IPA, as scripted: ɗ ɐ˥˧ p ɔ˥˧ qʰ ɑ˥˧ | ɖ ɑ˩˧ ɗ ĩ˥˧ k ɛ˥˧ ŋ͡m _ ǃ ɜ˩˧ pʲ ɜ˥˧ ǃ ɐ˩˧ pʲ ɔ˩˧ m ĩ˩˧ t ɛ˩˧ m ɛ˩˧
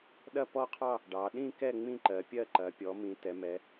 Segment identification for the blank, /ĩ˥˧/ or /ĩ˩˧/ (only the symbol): ĩ˥˧